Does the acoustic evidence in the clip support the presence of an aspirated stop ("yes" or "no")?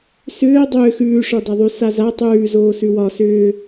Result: no